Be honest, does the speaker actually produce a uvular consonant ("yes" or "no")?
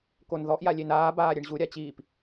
no